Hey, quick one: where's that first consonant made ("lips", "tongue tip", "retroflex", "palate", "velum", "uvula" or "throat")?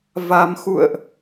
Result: lips